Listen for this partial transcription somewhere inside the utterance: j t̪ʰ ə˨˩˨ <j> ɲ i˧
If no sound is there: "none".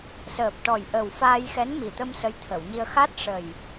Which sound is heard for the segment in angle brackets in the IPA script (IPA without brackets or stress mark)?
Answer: w